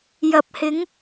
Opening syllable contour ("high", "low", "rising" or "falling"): low